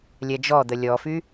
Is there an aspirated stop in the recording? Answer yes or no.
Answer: no